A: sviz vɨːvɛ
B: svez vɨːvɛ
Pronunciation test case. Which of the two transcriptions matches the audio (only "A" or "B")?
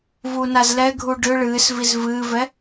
A